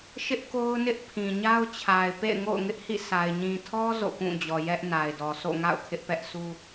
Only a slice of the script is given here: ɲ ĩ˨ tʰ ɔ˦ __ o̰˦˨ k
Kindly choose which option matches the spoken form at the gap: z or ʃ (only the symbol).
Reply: z